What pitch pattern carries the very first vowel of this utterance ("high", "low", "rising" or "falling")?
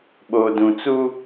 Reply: low